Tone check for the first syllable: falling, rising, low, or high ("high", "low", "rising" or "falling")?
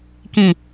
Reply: falling